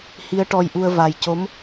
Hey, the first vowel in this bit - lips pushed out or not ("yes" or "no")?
no